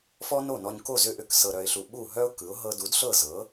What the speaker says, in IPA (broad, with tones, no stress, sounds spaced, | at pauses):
f ɔ˥ n o˥˩ n ɔ˧ ɲ k o˥˩ z ʏ˥˩ ʔ ʏ˥˩ k s ɤ˧ ɾ œ˧ ɪ̯ ɬ u˧ ɓ u˥˩ ɦ œ˥ ʊ̯ k ɯ˩˥ ʊ̯ ɦ ɤ˧ d u˩˥ d ɬ ɤ˥˩ z ɤ˩˥